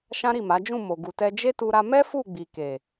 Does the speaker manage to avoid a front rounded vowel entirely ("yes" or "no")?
yes